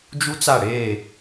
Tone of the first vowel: high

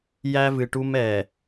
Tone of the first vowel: high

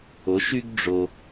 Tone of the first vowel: rising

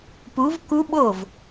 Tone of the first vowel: rising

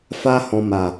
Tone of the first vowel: high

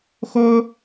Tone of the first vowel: high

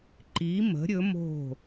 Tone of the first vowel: rising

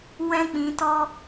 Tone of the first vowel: high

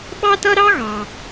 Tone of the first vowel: high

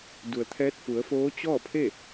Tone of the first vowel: low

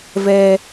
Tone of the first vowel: low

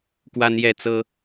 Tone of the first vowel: high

